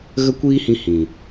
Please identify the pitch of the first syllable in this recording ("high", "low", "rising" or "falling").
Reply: high